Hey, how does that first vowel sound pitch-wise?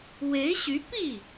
rising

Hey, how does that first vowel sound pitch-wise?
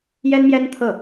high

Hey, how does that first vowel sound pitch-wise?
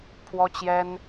high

